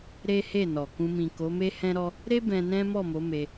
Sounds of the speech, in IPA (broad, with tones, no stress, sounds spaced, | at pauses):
ɾ e˦ h e˦˨ n ɔ˨ k ũ˧ m ĩ˨ k o˨˦ m e˦ h ɛ̃˦ ɾ ɔ˦ | ɾ e˦ b ɛ̃˧ n ɛ̃˦ m ɔ˦˨ m o˨˦ m e˧